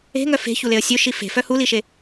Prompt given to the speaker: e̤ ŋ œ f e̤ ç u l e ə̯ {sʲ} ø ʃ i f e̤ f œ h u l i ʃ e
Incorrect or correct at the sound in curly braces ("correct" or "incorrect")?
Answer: correct